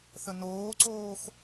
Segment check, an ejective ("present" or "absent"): absent